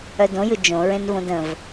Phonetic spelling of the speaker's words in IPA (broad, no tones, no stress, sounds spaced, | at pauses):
œ d õ j ɯ d͡ʒ õ ɹ ẽ n v õ d ə̃ v